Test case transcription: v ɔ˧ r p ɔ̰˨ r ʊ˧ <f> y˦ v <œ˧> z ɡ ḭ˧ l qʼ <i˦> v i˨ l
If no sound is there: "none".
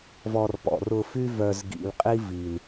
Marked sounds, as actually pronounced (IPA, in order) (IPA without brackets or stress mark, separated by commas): f, œ˧, i˦